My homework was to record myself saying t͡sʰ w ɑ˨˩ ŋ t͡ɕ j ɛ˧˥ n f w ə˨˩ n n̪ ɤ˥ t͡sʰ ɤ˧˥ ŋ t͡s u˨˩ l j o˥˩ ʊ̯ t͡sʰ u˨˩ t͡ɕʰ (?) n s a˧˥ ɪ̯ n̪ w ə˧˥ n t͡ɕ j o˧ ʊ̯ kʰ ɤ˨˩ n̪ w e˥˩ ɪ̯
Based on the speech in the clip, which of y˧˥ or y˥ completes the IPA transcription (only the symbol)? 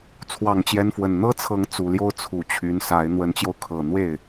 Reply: y˧˥